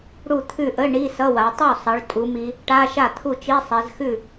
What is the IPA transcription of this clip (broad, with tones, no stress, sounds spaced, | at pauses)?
ɽ u˥˩ t̪ʰ ʉ˥˩ ʔ ə˧˥˧ ɳ i˧˥˧ s ʌ˧˥˧ w a˩˧ tˤ u˥˩ sˤ ʌ˩˧ ɭ tʼ u˩˧ m i˩˧ | ʈ a˧˥˧ ʃ a˥˩ t̪ʰ u˥˩ t͡ʃ i˧˥˧ sˤ ɛ˩˧ z x ʉ˥˩